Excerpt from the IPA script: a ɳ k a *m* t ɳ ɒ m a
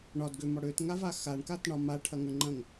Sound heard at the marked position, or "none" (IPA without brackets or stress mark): none